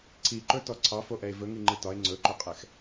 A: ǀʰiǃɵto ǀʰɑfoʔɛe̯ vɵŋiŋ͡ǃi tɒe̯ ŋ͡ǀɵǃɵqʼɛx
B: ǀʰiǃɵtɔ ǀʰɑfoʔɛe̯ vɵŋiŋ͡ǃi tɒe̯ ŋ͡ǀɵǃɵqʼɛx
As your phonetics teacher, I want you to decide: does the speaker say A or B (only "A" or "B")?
B